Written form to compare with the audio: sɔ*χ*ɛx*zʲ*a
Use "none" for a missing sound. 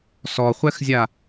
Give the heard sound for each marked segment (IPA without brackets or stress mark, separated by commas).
χʷ, zʲ